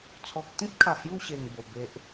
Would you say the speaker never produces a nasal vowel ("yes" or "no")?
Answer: no